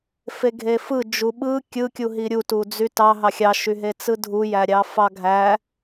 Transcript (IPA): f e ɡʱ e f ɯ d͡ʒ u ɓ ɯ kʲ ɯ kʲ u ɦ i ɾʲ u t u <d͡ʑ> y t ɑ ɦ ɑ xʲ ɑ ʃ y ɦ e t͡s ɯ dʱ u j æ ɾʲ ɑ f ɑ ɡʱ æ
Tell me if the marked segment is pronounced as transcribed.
no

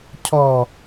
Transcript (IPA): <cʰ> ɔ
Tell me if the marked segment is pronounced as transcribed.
yes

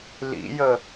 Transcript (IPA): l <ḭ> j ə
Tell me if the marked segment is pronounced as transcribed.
yes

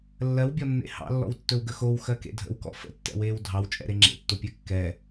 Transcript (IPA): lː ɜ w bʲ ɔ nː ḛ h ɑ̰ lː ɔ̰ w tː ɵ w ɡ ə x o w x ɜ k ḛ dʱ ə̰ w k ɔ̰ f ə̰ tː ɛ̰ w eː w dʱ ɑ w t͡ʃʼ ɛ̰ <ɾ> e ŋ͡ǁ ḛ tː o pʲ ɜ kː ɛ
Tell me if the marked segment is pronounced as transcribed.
yes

